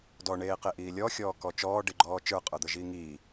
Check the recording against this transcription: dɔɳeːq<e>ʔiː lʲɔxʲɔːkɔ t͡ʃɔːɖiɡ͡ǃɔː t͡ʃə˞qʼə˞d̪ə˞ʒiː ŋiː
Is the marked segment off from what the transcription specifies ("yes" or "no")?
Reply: no